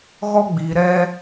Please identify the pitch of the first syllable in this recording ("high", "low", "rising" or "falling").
high